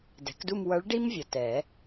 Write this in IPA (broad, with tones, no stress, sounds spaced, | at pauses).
d ɛ̤˩˥ k d u˥˧ m w ʌ˧˥ ɭ ɖ i˥ m vʲ ʌ˨ t ɛ˨˩˦